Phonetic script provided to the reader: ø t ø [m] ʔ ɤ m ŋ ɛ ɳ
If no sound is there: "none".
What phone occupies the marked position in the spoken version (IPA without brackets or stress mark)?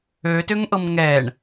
ŋ